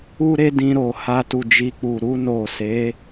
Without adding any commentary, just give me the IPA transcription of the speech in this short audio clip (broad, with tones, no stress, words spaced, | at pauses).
u˦ɾe˦dĩ˧ ɾo˨ha˧ tu˨d͡ʒi˨k͡pu˨ ɾu˧no˨se˨˦